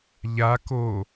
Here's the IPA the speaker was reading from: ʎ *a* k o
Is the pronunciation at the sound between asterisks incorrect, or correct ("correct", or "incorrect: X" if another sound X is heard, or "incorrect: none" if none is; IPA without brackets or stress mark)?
correct